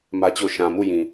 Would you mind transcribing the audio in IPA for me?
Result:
m ä˦ t͡ɕ o˦˨ ʃ ã˨ m u˦˨ j ĩ˨

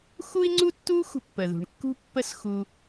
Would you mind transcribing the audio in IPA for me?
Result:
x u˥ i̯ ŋ͡ǀ u˥ tː u˥ xʷ ə̤˧ pː ə˩ ð ṳ˩ ɳ kː ṳ˥ pː ə˥ s x u˧

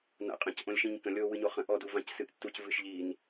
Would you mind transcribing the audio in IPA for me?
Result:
n a̰ qʼ ə̃ c ʔ õ lʲ ʃ ĩ ɲ k ə̃ lʲ o w ɨ ɲ o χ ə̃ ʔ ɔ d u v ã c s ɨ ʔ tː u c v ɨ ʃ ʎ i n

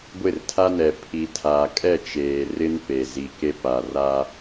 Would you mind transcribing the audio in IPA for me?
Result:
ɡʷ ɪ˦˨ r tʰ a˦ n ɛ˨ pʰ i˨ tʰ aː˨ kʼ ɛ˦˨ t͡ʃ eː˨ r ɪ˦ n p e˨ z i˨ k e˦ p a˨ r a˦

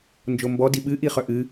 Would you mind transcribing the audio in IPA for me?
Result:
n d͡ʒ o m b ɔ d i ɓ ɨ ʔ i χ œ ʔ ɨ

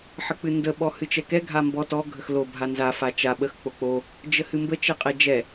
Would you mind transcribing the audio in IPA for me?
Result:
ħ ə k͡p ɨ n d ə ɓ ɔ h ɨ t͡ʃ ɛ k ɛ ɡʱ a m b ɔ t ɔ ɡʱ ə x l o bʱ a n z a f a t͡ʃ a ɓ ə x k͡p o k͡p o | d͡ʒ ə h ɨ m b ə t͡ʃ ɛ qʼ ɛ d͡ʒ ɛ

